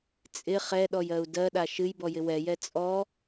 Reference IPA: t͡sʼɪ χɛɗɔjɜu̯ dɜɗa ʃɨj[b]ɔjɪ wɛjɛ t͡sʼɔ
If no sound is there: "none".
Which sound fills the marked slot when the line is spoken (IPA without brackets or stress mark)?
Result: b